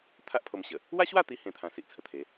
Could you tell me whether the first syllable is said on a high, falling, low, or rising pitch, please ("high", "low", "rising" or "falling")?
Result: high